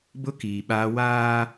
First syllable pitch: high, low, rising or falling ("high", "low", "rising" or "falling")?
high